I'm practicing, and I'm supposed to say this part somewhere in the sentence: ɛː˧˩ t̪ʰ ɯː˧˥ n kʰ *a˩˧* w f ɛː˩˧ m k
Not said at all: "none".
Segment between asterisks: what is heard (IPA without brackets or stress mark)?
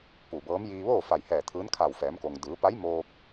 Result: a˧˩